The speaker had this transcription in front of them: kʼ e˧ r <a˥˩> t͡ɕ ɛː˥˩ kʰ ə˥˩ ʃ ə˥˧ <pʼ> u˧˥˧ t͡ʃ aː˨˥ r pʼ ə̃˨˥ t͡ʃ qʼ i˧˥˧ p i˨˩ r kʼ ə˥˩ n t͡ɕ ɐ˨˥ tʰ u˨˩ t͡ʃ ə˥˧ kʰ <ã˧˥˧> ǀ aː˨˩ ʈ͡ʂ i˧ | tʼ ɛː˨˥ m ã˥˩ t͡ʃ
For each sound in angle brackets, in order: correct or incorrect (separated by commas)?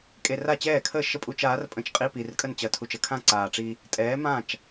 correct, correct, incorrect